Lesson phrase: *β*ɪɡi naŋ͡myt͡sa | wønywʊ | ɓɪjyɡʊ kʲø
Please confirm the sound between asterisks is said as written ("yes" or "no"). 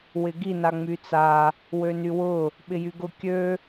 no